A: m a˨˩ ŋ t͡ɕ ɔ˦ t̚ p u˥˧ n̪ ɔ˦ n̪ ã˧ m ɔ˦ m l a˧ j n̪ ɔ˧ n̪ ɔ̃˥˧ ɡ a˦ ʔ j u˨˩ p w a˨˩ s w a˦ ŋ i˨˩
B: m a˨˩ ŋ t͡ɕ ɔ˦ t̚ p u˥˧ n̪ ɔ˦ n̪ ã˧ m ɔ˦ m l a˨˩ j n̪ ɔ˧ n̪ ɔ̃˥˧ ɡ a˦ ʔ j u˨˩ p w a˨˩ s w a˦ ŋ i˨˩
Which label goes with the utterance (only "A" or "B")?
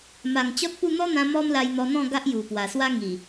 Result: A